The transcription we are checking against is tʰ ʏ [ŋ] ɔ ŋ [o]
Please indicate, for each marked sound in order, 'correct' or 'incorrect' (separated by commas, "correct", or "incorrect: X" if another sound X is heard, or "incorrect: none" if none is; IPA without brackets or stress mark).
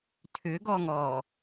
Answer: incorrect: ɡ, incorrect: ɔ